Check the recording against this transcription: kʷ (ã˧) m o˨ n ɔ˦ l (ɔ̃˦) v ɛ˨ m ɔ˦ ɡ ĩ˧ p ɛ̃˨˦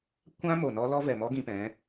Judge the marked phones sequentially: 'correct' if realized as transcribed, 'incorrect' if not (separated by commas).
incorrect, incorrect